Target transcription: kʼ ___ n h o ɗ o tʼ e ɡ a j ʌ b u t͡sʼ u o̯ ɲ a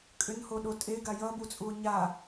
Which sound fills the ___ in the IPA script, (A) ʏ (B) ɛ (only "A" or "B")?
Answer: A